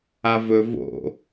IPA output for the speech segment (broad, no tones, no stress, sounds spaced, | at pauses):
a v ɵ v o̰